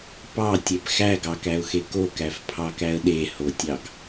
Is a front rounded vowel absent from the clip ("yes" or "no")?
yes